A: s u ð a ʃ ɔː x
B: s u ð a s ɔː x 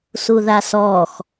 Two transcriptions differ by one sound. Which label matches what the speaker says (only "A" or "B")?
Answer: B